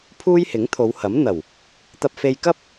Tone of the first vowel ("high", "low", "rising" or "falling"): high